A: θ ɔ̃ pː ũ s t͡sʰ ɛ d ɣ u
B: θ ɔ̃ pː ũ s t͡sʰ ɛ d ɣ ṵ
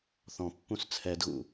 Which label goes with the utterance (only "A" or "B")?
B